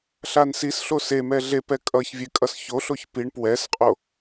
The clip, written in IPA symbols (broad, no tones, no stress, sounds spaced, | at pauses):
ɬ a n s i s ɬ o s e m ɛ ɮ e p ɛ kʼ ʌ ç vʲ e kʼ ʌ s ç o ɬ o ç p i ɳ p w ɛ s qʼ o